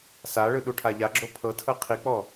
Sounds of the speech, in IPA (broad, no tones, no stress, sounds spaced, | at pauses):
s a ɭ ɯ ɗ u ʈʰ a ʎ a ɡ͡ǁ o pʰ ɤ tʰ ɤ qʰ i k͡p ɔ